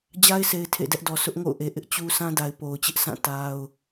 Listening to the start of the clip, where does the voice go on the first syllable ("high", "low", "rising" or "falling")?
high